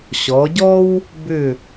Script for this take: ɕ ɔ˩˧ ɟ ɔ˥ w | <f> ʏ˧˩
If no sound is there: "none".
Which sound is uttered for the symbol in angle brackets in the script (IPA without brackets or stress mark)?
b